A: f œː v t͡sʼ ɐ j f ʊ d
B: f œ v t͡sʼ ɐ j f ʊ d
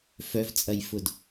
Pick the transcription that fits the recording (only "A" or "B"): B